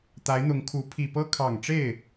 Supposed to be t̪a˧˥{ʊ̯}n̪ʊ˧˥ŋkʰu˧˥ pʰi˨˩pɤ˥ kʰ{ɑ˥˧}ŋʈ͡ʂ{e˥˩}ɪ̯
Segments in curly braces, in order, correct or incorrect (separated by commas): incorrect, incorrect, correct